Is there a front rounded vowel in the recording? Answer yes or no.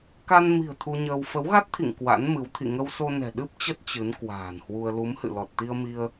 no